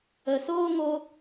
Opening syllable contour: low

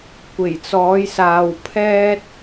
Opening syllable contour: low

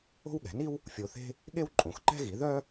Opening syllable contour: high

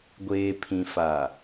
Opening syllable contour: low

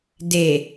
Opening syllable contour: low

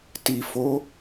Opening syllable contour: low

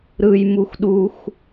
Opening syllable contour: high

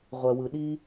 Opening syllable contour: low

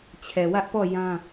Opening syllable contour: low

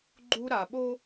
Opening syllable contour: high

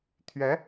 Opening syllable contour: rising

